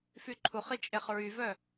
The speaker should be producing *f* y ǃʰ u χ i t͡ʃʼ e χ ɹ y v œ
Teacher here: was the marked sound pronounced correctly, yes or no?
yes